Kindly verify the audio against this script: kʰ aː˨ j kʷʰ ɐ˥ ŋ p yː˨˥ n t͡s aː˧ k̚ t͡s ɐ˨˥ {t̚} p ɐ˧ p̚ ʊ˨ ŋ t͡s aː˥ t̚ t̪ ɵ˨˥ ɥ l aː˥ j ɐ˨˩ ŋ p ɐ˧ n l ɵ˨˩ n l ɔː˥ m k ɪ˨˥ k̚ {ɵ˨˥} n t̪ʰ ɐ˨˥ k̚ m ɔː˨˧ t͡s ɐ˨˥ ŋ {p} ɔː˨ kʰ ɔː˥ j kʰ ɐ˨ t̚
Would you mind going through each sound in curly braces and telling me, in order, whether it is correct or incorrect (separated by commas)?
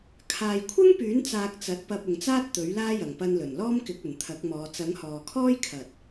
correct, incorrect, incorrect